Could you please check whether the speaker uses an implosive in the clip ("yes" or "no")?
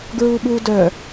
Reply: yes